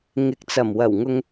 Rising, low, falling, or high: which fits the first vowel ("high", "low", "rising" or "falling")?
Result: rising